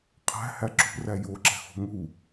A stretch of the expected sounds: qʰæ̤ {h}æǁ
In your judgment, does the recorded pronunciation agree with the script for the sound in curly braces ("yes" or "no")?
yes